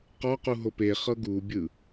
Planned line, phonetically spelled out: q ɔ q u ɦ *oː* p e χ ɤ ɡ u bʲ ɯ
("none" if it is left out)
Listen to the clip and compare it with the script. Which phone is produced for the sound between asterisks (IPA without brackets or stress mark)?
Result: o